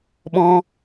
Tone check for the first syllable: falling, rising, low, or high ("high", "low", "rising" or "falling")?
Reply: high